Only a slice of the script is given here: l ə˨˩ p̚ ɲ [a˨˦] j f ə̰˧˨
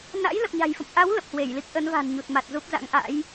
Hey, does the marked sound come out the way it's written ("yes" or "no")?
no